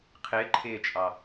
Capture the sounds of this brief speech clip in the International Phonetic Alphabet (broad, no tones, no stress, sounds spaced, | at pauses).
qʰ ɪː ǃʰ ɪː t͡ʃʼ ɑ